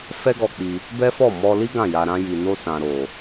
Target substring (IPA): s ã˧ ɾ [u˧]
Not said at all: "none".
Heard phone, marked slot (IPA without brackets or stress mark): o˧